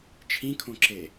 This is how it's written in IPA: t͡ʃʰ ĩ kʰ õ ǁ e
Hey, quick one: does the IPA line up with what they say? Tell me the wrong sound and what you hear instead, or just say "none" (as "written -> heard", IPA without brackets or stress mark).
none